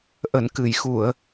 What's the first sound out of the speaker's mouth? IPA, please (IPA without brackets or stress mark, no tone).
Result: ʔ